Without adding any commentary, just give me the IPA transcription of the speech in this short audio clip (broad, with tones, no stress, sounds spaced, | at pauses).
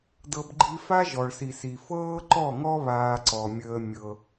d ɤ˦ b ɡ͡ǃ i˦ f a˦ ʒ ɔ˨ ɭ s i˨ s i˨ f ɤː˦ ǃ ɔ˦˨ ŋ ɔ˦ β aː˦ ǀ ɔ˨ mʲ əː˦ mʲ ɤ˦